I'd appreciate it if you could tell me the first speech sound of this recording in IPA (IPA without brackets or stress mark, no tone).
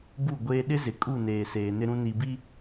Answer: b